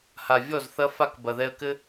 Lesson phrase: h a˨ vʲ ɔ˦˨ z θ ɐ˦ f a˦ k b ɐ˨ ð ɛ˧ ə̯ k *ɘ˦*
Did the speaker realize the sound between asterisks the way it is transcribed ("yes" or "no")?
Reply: yes